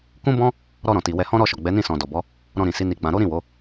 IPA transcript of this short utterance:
k ũ˦ b ɔ̃˦ | ɾ ɔ˧ ɾ ɔ̃˨ t i˨ w ɛ˧ h ɔ̃˦ ɾ ɔ˦˨ ʃ ɔ˨ ɡ͡b ɛ˨˦ n ĩ˦˨ s ɔ̃˨ d ɔ˨ b ɔ˨˦ | ɾ ɔ̃˧ ɾ ĩ˨ s i˨˦ n i˧ ɡ͡b ã˧ ɾ o˦ ɾ ĩ˦˨ w o˨˦

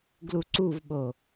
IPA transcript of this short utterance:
ɡ l u ǀ u v ɓ o

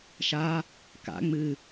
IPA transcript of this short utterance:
ʃ a | k a̰ ŋ͡m ɨ

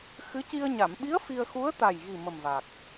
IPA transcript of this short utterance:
x ɨ˧˥ c i˧ ə̯ ɲ a˨˩˨ m ɓ i˧˥ ə̯ f i˧ ə̯ x u˧˥ ə̯ t̪ a˨˩ j ɣ i˨˩ m ə˨˩ m v a˨˩ k̚

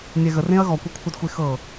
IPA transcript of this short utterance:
nʲ ɛ ɣ ə r ẽ ɐ̯ ɣ ɔ kʷ ʌ kʷʰ ʌ d xʷ e x ɤ

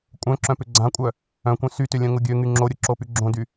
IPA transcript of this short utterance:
kʷʼ œ̃ ǁ œ̃ p ʏ ɡ͡ǀ ã kʷʼ œ | œ̃ kʷ œ̃ s y t ʏ lʲ œ̃ ŋ ʊ ɡʲ ø ŋ y ŋ͡ǁ o ɾʲ ʊ ǁ o p y ɡ͡ǁ õ d y

